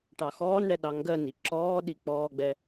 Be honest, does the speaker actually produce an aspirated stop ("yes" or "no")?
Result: no